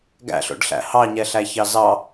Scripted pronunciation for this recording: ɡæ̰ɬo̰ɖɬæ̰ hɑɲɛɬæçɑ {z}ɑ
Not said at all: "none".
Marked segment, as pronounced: z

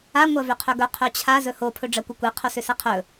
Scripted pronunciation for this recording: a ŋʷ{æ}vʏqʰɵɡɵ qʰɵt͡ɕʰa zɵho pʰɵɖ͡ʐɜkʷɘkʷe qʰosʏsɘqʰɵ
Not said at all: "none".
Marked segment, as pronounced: ɜ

